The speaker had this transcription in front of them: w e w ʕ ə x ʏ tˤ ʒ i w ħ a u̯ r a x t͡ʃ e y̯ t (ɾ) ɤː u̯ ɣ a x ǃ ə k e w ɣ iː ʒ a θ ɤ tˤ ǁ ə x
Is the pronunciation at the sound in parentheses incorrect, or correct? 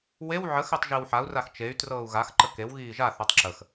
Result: incorrect: r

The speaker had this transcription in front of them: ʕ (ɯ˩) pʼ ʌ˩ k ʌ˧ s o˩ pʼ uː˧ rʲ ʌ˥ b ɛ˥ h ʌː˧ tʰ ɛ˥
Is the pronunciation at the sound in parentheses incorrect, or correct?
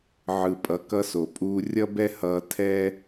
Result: correct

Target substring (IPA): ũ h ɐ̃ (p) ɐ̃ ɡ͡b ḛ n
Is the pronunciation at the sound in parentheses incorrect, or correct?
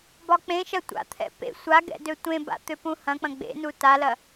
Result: incorrect: k͡p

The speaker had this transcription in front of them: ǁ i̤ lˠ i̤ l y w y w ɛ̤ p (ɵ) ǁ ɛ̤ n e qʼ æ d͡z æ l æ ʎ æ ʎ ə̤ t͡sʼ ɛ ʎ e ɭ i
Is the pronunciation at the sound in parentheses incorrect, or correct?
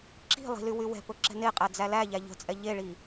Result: correct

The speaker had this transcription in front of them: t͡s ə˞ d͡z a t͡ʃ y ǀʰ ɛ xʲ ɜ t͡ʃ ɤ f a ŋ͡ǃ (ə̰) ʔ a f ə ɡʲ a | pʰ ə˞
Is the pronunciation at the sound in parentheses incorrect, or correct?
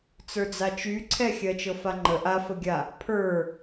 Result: incorrect: ə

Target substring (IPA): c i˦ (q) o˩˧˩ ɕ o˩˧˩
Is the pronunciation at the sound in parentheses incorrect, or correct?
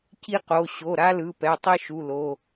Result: correct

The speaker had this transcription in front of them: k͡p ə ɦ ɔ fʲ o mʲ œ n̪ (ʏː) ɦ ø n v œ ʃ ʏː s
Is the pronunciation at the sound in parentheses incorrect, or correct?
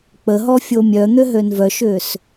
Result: incorrect: ʏ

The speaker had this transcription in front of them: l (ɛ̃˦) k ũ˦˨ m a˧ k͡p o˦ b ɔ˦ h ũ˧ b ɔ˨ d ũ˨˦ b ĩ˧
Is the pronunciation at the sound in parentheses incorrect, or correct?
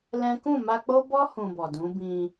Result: correct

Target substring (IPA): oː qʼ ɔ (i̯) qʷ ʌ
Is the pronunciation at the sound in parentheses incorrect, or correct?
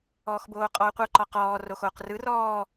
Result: incorrect: u̯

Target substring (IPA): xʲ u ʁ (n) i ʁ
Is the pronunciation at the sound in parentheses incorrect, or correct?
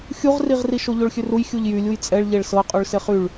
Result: incorrect: r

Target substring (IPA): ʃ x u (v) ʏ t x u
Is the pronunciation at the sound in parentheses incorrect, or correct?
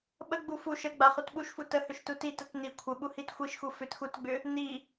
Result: incorrect: f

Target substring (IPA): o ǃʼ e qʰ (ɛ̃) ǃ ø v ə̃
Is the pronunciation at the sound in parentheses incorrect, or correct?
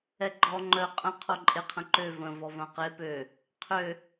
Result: incorrect: ə̃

